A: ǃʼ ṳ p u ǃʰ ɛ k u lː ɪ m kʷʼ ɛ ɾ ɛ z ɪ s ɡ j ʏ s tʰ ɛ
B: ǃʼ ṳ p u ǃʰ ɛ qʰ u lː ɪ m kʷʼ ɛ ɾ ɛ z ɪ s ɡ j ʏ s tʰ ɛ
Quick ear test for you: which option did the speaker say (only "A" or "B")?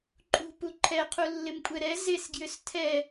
B